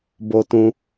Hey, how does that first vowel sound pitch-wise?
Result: low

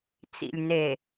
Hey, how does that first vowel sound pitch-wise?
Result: low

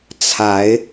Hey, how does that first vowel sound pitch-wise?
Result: rising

